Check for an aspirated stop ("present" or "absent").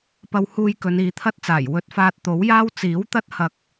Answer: present